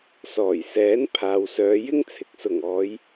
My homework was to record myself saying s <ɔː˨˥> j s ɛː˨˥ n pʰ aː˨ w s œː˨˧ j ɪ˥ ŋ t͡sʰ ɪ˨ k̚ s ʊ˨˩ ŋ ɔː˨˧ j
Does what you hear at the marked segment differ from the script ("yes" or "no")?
yes